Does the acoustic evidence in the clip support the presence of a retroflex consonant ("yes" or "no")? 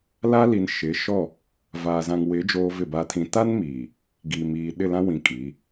no